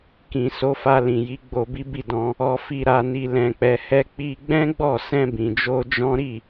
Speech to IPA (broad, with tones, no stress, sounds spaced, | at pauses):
k ĩ˨ s o˨˦ f a˧ l ĩ˨ j i˨˦ ɡ͡b o˧ b i˦ b i˦˨ d ɔ̃˧ | ɔ˧ f i˧ ɾ a˧ n i˧ l ɛ̃˧ k͡p ɛ˧ h ɛ˧ k͡p i˧ ɡ͡b ɛ̃˦ ɡ͡b ɔ˦˨ s ɛ̃˧ b ĩ˨ d͡ʒ o˧ d͡ʒ ɔ̃˦ ɾ i˦˨